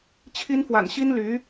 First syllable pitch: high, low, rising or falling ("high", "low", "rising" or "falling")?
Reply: high